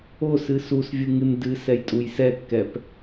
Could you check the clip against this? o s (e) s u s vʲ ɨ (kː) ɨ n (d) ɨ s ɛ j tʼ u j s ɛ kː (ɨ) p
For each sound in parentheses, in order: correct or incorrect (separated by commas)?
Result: incorrect, incorrect, correct, incorrect